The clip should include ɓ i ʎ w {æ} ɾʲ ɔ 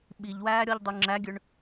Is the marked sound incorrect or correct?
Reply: incorrect: æː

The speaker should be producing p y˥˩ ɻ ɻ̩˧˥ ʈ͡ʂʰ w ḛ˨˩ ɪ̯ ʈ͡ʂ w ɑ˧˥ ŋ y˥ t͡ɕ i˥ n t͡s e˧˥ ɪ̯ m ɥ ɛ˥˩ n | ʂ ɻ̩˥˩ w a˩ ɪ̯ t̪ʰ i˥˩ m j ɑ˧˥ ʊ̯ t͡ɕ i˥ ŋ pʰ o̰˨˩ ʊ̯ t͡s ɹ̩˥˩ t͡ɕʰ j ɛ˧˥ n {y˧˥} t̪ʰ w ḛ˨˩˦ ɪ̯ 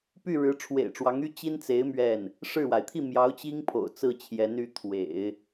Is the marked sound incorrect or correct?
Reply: correct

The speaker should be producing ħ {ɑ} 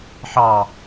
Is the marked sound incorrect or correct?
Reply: correct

